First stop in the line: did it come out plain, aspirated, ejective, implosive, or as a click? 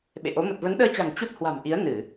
implosive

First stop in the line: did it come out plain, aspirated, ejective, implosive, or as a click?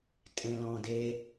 ejective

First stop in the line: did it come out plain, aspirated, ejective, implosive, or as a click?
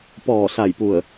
plain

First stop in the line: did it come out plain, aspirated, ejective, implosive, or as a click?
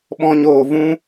implosive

